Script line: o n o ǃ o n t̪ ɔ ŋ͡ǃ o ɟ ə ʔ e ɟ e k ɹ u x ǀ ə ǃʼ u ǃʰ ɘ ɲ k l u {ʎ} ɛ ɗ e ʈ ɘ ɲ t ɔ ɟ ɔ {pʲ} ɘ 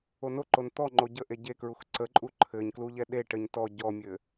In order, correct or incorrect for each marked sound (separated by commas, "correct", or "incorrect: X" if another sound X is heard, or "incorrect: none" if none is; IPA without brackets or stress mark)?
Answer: correct, incorrect: mʲ